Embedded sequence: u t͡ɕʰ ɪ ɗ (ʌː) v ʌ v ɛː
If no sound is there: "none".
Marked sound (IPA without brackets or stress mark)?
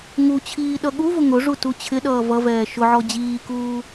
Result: ʌː